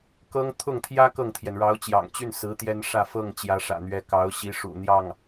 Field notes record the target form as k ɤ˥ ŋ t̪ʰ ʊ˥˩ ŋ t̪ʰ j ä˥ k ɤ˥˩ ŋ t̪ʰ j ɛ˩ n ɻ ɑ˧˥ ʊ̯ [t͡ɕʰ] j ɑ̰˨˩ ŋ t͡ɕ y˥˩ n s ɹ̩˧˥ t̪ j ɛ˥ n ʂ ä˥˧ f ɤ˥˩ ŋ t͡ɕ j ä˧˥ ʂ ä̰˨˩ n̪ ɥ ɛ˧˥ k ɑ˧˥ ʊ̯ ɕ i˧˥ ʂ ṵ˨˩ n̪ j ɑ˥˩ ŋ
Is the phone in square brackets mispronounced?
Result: yes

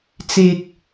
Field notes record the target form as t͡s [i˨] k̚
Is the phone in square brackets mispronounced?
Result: yes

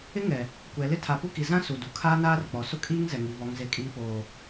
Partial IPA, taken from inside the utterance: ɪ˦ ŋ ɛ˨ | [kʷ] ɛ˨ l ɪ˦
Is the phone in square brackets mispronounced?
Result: no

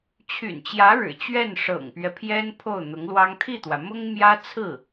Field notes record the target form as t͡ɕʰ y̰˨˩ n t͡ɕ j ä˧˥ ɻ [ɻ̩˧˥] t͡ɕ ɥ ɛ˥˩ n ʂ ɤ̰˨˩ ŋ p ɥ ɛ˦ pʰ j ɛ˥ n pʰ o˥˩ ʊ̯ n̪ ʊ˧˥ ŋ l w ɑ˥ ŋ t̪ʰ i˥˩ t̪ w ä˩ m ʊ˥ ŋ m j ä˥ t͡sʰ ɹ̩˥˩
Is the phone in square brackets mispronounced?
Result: yes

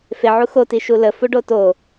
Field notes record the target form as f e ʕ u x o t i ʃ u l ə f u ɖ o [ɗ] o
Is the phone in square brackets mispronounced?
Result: yes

